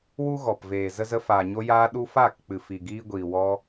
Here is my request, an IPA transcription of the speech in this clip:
w u˦ ɣ ɔ˨ p v eː˨ z ə˧ z ə˧ f aː˨ ɲ o˧ j aː˧ ɗ u˧ f aː˦˨ k k͡p ɨ˨ f i˨ ɡ iː˧ ɡʷ iː˨ w ɔ˧

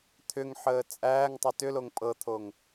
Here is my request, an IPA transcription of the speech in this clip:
t̪ʰ ʏ ŋ ħ əː t͡sʼ æː ŋ tˤ ə t ʏ l o ŋ pʼ ɤ t̪ʰ o ŋ

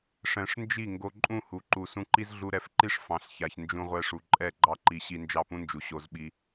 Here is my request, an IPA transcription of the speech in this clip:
ʂ ɛ̃˨ ʂ n d͡ʒ i˦˨ ŋ ɡ o˧ ǃʼ ũ˦˨ h u˨ ǃ u˨ s ũ˧ ǃ i˦ z ɮ u˧ ɾ ɛ˧ f ǃ i˦ ʂ f ɑ̃˨ ɬ ç a˨ ç n d͡ʒ ũ˦ ʁʷ ɛ˦ ʂ u˧ ǃʼ ɛ˦˨ ɡ͡ǃ ɑ˦ ǃ i˧ ɕ i˧ n d͡ʒ ɑ˦˨ p ũ˦ n d͡ʒ u˨ ɕ o˧ z ɓ i˧

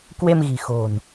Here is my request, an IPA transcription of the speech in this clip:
k w e˧ m ɣ i̤˨˩ x o̤˨˩ n

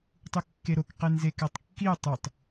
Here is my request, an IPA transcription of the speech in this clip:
tˤ u kː e ɾ o k q e n z e k æ tˤ kː i ʊ̯ tˤ u tˤ

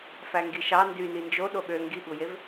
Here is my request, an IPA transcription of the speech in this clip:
f æ ŋ ɡ i ʃ ɑ n d y n i n d͡ʒ o ɗ o ɠ ø ŋ ɡ i ɠ u j e v

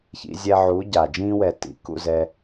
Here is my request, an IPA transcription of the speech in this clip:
ç ḭ˧ zʲ ɛ˧ ʕ u˨˦ ɟ a˨ d͡ʒ ĩː˧ w ɛ˨ t ḭ˨ k ṵ˦˨ z ɛ˧

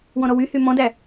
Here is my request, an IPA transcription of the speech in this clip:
w ɔ̃ ɾ ɔ w y h y m ɔ̃ d æ

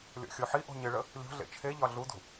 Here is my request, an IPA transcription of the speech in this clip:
lʲ ɔ̰ xʲ o ħ i ʔ o̤ ɲ ɪ ɭ ə | lʲ o̤ ɮ ḛ t͡ʃʰ e ʎ ɒ ɮ u d ṳ

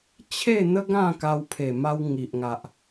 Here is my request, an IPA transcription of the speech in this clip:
t͡ɕʰ e˥˧ n̪ ə˦ ɡ ã˥˧ k a˧ w pʰ e˨˩ m a˧ w ŋ i˨ ʔ ŋ a˨ ʔ

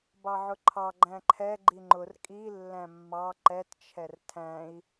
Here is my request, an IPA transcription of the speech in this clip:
b ɑ ʕ ʊ ǃʰ ɑ ɡ͡ǃ æ̃ ǃʰ ɛ ɡ͡ǃ i ŋ͡ǃ ʊ r kʼ i lː æ̃ mː ɑ ǃ ɛ t t͡ʃʰ ɛ r tʰ æ̃ i̯

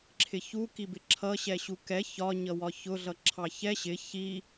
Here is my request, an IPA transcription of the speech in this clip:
ǁʰ ɪ ç u k i b ɪ ǁʰ ʌ ɕ ɛ ɕ u k ɛ ç ɒ ɲ ʌ w ɒ ç ʊ ɮ ʌ ǁʰ ɑ ç ɛ ɕ ɪ ç i

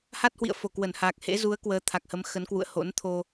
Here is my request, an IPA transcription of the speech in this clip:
h a˦˥ t̚ h w ḭ˧˨ ə̯ f o˧˩ k w ə˧˩ n h a˨˩ k̚ h ḛ˧˥ z u˨˦ ə̯ k w əː˨˦ t̪ʰ a˨˩ k̚ h ə˨˦ m x ə˨˦ n k w ṵ˧˨ ə̯ h o̰˧˥ n t̪ʰ o˧

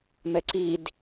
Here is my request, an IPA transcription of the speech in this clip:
m ɛ ǀ i d

